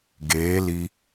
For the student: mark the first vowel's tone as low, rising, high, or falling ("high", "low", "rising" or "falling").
rising